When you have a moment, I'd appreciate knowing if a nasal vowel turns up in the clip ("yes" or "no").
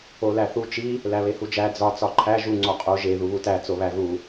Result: no